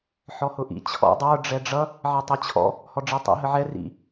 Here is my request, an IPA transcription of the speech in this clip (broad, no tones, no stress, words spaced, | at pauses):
ħɔhʊʔḭ t͡ɕʰɔ̰ dˤə˞ ɖ͡ʐɛɖ͡ʐʌ | ʕɛtˤit͡ɕʰɔ̰ | hɔɖ͡ʐitˤḭ ɦəʕɛ rḭ